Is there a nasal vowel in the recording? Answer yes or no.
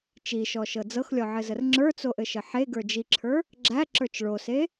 no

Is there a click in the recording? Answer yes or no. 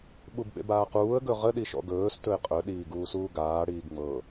no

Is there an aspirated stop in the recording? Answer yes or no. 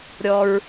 no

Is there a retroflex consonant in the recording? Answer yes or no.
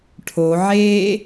yes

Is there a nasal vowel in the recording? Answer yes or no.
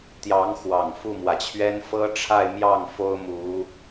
no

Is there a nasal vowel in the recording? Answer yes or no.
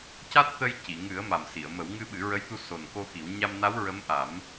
no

